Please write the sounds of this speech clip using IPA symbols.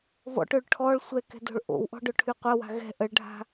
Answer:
v ɔ̰ ʈ ø ɭ ʈʰ ɔ ɭ sʷ ɛ k ɛ̤ d o̤ ɭ ʔ o̰ w ʔ ɔ̤ ɖ ʊ ʈʰ y qʷ ɐ w a̤ ɣ ɛ̤ ʔ ə ɭ ɖʱ a̤

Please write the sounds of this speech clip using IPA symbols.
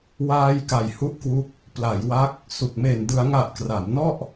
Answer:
w aː˧ j k a˨˩ j h u˦˥ ʔ k w u˦˥ k̚ | p l a˩˦ j w a˦˥ k̚ | s u˨˩ k̚ m e˨˩ n d ɯ˩˦ a̯ ŋ a˨˩ ʔ k r a˩˦ m n ɔ˥˩ ʔ

